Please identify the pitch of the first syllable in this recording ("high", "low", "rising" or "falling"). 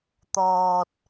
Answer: low